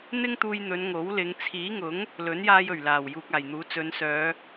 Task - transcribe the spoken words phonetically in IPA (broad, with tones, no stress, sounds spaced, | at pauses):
n̪ ɪ˥ ŋ t̪ uː˧ j n̪ ɵ˨˧ n ŋ o˨˥ w l ɪ˨˧ ŋ t͡sʰ iː˨˥ ŋ ʊ˨˥ ŋ | l ɵ˨˥ n j aː˧ j ɵ˨˩ ɥ l aː˨˩ w j uː˨ k̚ aː˨˩ j n̪ uː˨˥ t͡s ɵ˨˧ n s œː˨˧